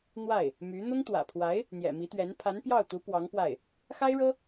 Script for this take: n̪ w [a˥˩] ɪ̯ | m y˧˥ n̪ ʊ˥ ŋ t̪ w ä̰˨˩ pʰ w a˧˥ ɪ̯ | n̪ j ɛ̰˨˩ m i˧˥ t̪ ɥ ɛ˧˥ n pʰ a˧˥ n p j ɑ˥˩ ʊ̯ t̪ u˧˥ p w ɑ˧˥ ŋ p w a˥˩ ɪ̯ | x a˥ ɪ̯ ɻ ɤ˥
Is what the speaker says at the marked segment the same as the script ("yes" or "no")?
yes